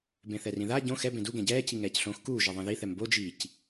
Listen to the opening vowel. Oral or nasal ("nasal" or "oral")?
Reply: nasal